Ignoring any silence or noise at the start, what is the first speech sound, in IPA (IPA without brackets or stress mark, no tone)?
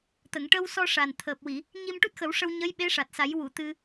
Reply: t̪